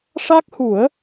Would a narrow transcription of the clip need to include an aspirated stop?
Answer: no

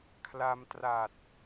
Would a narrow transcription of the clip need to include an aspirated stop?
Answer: yes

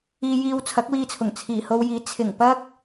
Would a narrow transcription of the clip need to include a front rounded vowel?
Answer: no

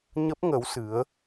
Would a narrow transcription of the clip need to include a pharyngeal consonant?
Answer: no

